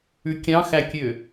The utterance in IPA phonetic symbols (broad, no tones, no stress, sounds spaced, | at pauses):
ʉ kʲ ɑ̃ x æ kʲ ø